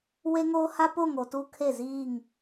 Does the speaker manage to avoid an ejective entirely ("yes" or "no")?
yes